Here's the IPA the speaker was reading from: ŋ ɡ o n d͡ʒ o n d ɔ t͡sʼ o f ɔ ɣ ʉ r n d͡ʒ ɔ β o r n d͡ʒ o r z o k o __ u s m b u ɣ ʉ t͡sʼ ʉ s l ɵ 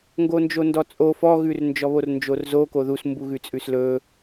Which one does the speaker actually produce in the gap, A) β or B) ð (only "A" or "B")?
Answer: B